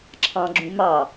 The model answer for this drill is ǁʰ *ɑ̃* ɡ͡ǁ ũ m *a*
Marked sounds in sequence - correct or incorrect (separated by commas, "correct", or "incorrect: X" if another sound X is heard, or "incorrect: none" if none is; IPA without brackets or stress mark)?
correct, incorrect: ɑ